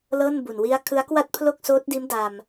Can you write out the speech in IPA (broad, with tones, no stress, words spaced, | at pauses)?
lɤː˥˩nbu˨˩n wi˦˥a̯kʰɯ˦˥a̯kwa˥˩t̚ pʰlo˥˩k̚soː˦˥t̚diː˦˥m da˧m